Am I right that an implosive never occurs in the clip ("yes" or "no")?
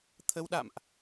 no